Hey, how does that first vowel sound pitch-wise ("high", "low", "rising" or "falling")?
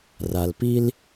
low